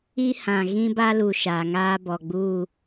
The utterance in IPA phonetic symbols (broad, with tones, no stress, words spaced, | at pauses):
i˦hã˨ ɣĩ˦ba˦lu˨ ʃa˨ ŋaː˦bɔ˨ɡ͡buː˦˨